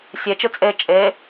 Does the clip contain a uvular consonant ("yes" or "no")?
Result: no